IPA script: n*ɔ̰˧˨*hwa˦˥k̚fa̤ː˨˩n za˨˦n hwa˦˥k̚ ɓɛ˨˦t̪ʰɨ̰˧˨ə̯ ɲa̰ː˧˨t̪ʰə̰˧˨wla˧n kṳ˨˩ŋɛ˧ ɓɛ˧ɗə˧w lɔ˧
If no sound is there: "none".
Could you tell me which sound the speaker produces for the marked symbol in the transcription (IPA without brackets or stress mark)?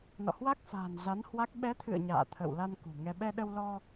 ɔ̰˧˨